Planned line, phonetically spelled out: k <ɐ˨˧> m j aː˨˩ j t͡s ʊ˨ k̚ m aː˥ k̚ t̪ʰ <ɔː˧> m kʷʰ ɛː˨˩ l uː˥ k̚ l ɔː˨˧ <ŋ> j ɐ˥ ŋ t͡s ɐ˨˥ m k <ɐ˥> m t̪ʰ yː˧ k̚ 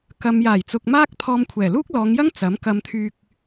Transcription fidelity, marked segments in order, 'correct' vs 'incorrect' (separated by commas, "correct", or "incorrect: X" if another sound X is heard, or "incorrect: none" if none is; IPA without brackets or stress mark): incorrect: ɐ˨, correct, correct, incorrect: ɐ˧